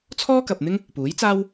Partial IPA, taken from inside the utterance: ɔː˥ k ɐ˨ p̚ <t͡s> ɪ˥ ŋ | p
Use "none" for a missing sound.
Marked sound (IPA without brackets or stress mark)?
n̪